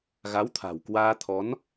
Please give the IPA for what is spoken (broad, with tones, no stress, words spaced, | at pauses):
ɣa˨˦wt̪ʰa̤˨˩w kwaː˧t̪ʰɔ˨˦n